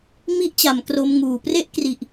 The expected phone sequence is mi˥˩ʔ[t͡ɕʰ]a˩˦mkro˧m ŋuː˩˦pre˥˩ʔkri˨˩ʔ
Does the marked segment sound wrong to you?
yes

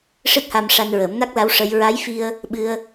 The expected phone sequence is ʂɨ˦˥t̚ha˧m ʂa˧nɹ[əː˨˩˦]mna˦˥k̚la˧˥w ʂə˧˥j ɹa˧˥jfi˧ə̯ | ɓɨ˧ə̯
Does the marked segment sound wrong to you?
no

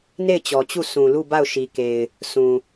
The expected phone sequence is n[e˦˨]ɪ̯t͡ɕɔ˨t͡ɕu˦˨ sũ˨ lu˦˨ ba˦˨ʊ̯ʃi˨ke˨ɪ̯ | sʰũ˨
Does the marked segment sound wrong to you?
no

